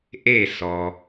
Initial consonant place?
glottal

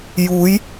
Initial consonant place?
palatal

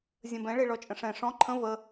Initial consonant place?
alveolar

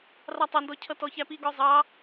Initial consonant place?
alveolar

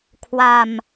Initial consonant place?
velar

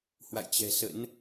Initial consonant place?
glottal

